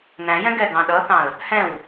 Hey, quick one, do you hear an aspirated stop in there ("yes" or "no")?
no